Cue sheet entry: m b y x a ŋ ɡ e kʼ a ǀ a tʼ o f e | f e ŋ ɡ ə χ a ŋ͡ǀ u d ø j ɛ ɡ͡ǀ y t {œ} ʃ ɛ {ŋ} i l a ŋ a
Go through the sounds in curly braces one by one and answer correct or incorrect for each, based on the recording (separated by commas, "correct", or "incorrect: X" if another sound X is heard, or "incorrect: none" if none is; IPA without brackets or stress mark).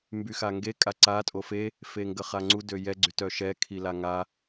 correct, incorrect: kʰ